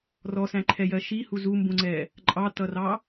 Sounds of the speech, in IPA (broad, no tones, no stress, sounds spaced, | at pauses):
r ɔ s æ̃ ǃʰ ɛ j ɜ ʃ i h u z u m b ũ ŋ͡ǀ ɛ | ǃʼ ɑ t ʌ r ɑ